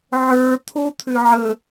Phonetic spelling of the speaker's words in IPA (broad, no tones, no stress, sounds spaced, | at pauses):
ʕ ə˞ t̪ʰ o t̪ʰ ʏ ʕ ə